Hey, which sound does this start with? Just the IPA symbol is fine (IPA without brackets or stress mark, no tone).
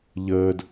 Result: ʎ